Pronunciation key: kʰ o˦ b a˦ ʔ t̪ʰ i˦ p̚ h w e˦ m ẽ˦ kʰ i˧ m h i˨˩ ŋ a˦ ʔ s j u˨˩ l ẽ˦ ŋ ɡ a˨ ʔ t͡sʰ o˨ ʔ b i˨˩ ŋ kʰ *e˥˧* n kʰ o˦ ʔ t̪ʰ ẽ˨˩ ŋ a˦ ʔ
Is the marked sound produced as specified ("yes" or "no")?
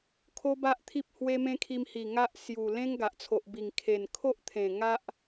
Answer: no